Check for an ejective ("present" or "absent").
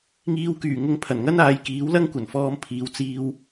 absent